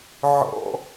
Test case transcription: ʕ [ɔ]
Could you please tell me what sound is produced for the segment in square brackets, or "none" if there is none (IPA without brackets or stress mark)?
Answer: ɔ̰